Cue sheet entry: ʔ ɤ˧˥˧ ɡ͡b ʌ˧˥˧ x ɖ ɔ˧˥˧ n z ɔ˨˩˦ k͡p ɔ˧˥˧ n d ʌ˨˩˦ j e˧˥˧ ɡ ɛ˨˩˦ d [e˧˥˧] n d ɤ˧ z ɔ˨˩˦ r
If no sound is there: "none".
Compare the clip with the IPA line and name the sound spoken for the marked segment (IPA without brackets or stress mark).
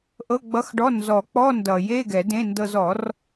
ẽ˧˥˧